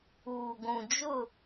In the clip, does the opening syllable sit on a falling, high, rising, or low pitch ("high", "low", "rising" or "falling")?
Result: low